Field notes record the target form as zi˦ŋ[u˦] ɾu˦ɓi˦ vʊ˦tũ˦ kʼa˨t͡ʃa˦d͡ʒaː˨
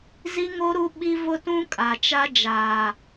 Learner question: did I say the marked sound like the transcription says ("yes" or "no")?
no